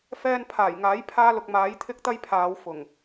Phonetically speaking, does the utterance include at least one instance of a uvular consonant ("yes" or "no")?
no